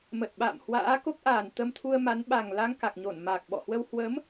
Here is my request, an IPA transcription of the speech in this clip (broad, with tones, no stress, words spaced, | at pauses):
mə˨˩t̚ɓa̰˧˨mhwa̰ː˧˥ ko˦˥k̚ʔaː˨˩nt̪ə˧mt̪ʰu˧ə̯ ma˨˦nɓa˨˩ŋ la˧ŋka˨˩k̚ɲo˧˩n ma˨˩k̚ɓɔ̰˧˨hwə˧w hwə˨˦m